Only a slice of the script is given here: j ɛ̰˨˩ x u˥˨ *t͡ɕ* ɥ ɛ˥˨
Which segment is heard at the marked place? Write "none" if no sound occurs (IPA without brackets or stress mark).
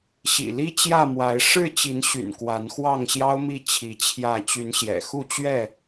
t͡ɕ